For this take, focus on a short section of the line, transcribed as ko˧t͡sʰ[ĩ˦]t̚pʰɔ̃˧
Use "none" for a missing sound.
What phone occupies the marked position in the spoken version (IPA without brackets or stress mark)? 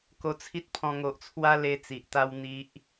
i˦